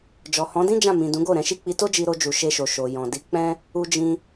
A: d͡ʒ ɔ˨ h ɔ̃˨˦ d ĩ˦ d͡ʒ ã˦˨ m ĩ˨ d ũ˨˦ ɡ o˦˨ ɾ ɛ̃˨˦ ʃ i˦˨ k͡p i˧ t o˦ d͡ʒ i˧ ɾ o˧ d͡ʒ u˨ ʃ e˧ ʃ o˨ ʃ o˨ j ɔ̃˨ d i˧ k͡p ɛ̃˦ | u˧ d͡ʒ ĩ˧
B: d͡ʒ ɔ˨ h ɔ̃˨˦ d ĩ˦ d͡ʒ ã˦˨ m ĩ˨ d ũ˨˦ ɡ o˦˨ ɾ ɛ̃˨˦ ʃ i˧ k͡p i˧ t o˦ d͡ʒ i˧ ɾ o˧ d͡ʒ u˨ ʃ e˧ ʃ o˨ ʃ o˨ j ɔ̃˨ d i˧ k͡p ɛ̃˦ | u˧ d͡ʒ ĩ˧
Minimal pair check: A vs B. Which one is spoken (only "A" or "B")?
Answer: A